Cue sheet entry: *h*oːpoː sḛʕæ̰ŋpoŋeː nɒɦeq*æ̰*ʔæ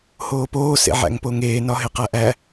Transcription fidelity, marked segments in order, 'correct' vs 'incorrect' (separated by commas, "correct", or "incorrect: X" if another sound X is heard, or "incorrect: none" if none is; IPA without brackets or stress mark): correct, incorrect: æ